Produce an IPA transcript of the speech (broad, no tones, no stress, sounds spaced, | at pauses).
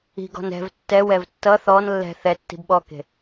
i̤ ɡ ɔ̤ n ɛ̤ v tː ɛ w ɛ v tː ʌ θ ɔ n lː ɛ̤ θ ɛ tː i̤ b ɓ ɔ k e̤